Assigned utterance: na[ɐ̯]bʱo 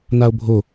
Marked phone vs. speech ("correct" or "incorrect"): incorrect